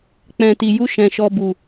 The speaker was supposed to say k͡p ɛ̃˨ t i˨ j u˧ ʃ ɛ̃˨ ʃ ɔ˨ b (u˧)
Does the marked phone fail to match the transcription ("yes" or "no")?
yes